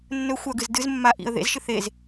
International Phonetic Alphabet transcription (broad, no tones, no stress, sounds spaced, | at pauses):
nː ɵ xʷ a ɡ ɨ z d ɨ z mː a ʔ ḭ ə̯ ð ḛ z ʃ ɨ θ e z